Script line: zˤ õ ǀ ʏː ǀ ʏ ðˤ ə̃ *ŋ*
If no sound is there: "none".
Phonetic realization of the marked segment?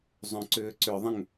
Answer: ŋ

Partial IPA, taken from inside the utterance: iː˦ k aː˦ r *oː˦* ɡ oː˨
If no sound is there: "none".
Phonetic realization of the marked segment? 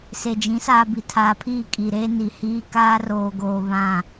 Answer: oː˨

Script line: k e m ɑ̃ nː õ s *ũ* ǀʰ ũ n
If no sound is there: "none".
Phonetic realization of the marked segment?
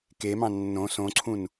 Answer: õ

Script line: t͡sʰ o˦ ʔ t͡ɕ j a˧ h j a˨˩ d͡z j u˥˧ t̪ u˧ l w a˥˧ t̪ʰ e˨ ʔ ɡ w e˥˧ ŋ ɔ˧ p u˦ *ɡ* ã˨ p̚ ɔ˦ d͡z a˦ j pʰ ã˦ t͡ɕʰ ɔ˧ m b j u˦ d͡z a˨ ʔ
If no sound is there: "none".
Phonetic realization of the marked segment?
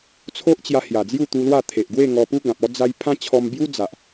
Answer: ɡ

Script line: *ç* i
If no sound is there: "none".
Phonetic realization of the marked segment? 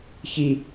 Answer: ç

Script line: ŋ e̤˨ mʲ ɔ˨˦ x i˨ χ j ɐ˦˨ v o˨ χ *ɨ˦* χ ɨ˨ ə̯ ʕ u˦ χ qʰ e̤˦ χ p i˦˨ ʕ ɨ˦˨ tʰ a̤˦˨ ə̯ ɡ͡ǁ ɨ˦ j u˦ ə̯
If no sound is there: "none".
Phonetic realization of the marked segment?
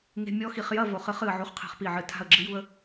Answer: ɨ˨˦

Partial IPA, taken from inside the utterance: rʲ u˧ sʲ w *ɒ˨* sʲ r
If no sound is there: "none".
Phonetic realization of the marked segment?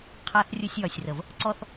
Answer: ɒ˨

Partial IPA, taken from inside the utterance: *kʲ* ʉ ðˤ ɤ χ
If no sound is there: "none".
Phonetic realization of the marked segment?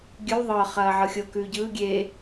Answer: ɡʲ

